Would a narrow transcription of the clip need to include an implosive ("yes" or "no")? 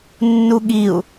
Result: yes